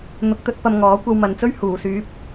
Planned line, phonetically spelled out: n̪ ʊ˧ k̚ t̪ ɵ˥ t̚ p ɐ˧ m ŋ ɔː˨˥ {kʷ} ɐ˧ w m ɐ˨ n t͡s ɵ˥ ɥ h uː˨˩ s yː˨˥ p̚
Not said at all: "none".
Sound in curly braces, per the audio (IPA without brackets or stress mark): kʷ